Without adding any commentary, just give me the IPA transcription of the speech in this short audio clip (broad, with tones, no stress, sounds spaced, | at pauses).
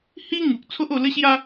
h i˦ ŋ u˨ k̚ t͡sʰ o˦ ʔ o˧ l ə˦ ɕ j a˦